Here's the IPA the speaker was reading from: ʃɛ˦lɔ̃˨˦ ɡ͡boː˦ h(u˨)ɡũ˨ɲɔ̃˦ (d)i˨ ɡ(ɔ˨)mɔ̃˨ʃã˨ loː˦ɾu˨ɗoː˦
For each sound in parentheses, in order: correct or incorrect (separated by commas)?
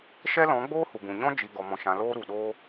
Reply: correct, incorrect, correct